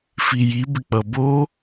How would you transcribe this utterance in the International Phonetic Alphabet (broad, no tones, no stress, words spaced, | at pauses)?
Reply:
fiji bɪk͡pʌbo